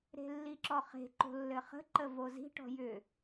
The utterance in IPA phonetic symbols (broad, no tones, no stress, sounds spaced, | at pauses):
ɾ e̤ lː i ǁ ɔ χ e̤ ǃ o̤ lː ɘ χ ə̤ ǃ ə v o z i̤ ʈ ɔ̤ j ʏ